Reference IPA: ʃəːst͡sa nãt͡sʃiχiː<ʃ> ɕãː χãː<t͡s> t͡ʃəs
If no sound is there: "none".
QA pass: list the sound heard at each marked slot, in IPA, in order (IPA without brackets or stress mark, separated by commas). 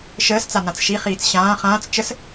t͡s, t͡s